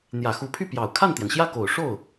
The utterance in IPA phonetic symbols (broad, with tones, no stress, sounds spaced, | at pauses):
n̪ j ä˨˩ x u˧˥ pʰ y˥˩ p j ɑ˨˩ ʊ̯ kʰ a˥˩ n t̪ j ɛ˩ n ɕ j ä˥˩ k o˨˩ ʊ̯ ʂ o˥˩ ʊ̯